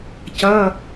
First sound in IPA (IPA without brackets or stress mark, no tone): c